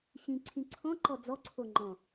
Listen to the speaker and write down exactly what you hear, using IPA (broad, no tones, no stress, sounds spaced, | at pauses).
ɕ ĩ ǀʰ ĩ ǀʰ ɔ̃ ǃ ɔ d͡z ɔ ǀʰ o ŋ͡ǃ ɔ̃